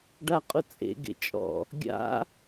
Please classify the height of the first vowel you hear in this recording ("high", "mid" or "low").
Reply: low